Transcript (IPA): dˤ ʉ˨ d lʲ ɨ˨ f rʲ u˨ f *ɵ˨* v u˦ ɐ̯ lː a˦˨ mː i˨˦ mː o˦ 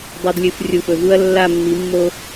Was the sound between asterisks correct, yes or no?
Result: yes